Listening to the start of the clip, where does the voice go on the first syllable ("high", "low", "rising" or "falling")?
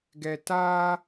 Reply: low